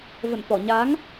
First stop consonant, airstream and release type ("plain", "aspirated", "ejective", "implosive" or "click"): plain